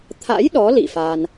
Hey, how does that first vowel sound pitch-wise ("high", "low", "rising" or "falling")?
rising